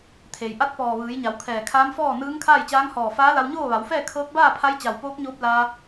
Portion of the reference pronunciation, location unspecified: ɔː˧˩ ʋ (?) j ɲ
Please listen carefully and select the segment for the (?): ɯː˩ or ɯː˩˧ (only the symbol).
ɯː˩˧